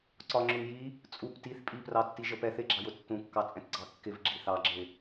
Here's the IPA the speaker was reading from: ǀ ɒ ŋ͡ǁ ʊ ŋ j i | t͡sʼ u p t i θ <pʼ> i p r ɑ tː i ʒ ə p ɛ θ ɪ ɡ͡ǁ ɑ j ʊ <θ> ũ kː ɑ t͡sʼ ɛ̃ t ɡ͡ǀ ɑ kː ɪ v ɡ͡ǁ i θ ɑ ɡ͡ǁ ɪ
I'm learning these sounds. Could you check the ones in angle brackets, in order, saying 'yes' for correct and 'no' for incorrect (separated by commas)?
yes, no